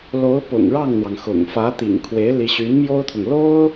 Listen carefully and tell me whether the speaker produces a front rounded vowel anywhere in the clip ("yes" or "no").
yes